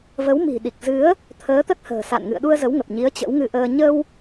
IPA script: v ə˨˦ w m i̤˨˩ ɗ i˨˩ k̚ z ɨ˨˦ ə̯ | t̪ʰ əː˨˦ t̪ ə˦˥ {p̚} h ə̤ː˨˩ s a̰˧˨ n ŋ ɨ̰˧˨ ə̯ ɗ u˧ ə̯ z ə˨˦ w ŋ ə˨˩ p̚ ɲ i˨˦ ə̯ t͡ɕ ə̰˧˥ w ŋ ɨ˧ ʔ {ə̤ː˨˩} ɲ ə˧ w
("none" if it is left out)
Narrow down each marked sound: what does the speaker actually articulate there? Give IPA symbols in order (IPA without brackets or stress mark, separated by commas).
t̚, əː˧